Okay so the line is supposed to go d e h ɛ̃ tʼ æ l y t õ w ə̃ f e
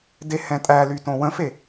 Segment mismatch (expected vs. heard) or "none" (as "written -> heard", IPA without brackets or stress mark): none